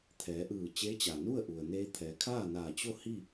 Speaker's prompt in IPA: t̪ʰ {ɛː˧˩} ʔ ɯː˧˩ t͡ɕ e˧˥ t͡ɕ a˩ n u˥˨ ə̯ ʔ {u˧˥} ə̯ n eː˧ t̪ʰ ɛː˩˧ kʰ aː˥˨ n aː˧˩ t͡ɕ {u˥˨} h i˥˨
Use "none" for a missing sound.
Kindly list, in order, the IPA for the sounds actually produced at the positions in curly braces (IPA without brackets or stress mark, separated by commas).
ɛː˩˧, u˩, o˥˨